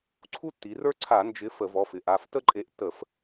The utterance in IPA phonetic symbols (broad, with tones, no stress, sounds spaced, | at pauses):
ǀʰ u˥ tː i˩˧ r ə˞˥ ǀʰ a˧˩˧ n d͡ʒ ɪ˨˥ f ə˧˩˧ v ɔ˩˧˩ f ɪ˩˧ ʔ a˩˧˩ f t ə˥ ǃʼ e˨˥ ʔ t ə˧˩˧ f